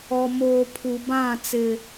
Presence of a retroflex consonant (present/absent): absent